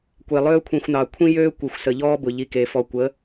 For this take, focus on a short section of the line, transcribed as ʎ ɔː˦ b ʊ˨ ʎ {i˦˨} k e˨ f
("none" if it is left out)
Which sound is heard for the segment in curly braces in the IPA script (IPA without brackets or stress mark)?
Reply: i˨